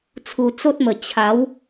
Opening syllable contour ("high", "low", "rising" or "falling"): low